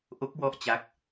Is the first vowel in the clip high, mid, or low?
mid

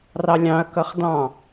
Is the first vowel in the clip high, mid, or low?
low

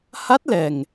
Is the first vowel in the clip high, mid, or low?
low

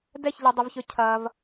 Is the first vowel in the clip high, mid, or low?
mid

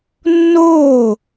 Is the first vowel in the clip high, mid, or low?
mid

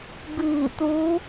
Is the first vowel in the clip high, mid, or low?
high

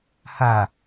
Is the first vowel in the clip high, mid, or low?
low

